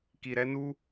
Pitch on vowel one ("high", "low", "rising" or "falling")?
low